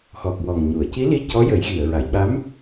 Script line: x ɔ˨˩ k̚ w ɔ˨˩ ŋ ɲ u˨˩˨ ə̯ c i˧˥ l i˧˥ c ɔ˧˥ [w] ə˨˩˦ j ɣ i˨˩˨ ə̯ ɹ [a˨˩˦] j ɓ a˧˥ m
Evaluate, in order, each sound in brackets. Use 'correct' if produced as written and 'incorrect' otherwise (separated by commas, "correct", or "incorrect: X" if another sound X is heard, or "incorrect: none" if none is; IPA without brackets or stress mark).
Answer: incorrect: j, incorrect: a˨˩˨